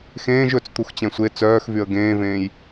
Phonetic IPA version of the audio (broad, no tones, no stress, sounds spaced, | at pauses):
x ẽː ʒ ɵ t͡s t̪ u x t͡ɕ ɛ̃ sʷ e t͡s œː x v y ə̯ ɡ ẽː v ẽː j